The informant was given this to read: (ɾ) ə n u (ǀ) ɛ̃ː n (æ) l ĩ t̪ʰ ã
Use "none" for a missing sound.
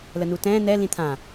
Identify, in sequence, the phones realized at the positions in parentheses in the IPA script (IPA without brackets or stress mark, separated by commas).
l, t, ɛ